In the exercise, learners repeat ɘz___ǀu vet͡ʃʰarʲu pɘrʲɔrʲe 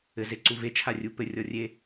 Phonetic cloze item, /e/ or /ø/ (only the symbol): e